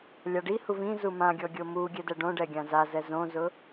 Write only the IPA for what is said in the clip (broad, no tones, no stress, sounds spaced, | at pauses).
lʲ a ɖ i h u v ĩ z u m ã ɡʲ ɔ ɡʲ o m u ɡʲ ɛ d ɛ ɖ õ ɖ ɛ ɡʲ ã z a z ɛ z õ z ʊ